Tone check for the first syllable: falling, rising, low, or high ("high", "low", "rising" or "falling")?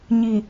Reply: low